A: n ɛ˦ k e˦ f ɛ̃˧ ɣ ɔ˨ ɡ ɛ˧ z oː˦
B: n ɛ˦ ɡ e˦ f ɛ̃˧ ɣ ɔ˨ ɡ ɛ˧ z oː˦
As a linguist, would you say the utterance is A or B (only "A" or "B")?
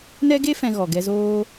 B